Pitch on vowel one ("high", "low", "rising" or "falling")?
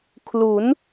rising